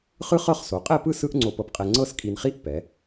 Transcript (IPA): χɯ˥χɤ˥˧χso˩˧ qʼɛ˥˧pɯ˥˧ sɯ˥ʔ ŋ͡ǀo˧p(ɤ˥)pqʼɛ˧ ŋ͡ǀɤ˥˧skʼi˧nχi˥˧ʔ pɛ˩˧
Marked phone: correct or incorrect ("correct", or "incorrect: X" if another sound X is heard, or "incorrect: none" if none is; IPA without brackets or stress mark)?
incorrect: ɤ˧